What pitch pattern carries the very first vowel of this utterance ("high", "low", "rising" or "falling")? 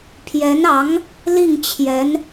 rising